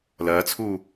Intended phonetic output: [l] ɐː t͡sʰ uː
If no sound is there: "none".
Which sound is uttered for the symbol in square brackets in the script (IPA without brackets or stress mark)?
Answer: l